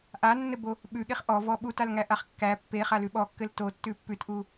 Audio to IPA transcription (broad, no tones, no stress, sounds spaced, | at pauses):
ʔ a nː ɘ b o | ɓ ʉ ɠ e χ ʔ ɔ v ɔ ɓ u t a l ŋ æ ʔ a χ kː æ pː e χ a l ʉ ɓ ɔ kː ɘ l t o tː ʉ pː ʉ t ʔ u